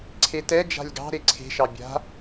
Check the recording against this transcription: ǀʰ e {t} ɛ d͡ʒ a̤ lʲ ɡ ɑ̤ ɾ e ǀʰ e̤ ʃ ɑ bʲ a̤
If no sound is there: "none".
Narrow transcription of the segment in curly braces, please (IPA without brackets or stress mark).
t